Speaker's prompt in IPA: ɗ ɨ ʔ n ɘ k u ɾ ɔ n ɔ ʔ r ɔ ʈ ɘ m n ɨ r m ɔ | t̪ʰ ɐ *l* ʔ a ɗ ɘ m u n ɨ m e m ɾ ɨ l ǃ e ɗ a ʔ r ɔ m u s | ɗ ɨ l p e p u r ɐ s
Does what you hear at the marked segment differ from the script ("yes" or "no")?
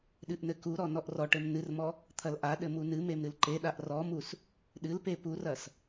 no